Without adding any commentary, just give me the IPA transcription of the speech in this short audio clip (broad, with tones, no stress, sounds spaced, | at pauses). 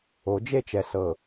o˨˦ d͡ʒ e˦˨ t͡ʃ ɛ˨ s ɤ˨